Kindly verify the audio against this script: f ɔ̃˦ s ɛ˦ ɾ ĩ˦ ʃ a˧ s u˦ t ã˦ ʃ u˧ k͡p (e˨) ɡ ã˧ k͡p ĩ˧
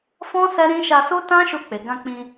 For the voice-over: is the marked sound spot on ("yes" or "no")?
yes